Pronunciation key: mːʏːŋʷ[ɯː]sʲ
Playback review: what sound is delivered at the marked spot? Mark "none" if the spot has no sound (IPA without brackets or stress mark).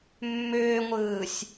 ɯː